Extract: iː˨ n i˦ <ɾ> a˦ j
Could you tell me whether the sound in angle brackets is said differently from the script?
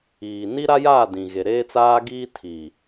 no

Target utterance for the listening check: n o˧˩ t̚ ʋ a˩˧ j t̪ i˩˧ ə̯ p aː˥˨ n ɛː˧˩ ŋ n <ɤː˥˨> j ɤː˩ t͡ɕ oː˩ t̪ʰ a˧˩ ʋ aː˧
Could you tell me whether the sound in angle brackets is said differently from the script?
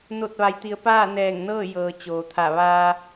no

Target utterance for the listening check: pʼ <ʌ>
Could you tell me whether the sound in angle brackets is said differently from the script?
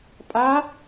yes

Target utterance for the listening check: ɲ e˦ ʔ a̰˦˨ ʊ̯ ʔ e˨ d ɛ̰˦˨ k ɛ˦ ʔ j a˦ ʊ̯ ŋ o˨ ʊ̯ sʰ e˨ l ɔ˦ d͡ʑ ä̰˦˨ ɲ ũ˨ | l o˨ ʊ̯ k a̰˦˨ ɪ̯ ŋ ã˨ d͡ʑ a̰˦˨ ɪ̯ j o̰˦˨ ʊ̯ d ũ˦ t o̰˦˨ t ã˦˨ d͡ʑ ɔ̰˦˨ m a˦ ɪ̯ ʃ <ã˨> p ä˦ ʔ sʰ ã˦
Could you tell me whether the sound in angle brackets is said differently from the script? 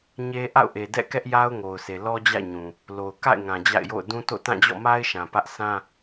no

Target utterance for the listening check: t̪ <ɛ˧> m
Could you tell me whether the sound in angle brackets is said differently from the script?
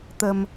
yes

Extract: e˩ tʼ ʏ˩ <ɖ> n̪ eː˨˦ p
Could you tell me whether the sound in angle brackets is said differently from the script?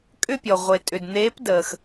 yes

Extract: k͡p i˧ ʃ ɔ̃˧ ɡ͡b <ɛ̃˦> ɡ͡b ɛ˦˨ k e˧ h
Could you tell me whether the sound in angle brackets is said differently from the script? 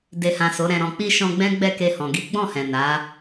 no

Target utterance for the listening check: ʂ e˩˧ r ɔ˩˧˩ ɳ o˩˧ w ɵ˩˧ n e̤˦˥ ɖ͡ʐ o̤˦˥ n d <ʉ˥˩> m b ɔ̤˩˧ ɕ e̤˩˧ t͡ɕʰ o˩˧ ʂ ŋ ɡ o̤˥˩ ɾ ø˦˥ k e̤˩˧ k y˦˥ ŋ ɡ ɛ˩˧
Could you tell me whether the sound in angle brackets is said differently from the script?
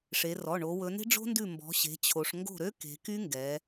no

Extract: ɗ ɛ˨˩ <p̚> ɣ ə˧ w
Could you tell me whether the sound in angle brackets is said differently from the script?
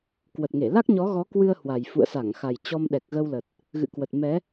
yes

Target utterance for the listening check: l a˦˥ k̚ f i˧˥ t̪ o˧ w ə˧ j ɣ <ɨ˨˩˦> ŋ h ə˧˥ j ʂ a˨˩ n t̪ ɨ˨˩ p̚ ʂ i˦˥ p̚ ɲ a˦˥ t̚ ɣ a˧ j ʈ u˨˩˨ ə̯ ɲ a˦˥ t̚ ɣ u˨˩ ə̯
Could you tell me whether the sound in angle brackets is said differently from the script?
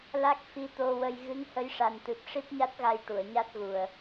yes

